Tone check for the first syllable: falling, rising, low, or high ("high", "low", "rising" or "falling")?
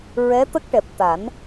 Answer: rising